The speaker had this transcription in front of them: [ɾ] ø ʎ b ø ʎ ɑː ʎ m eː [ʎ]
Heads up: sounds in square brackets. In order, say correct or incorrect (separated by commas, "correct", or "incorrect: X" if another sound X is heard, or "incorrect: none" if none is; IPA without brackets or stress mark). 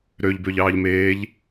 correct, correct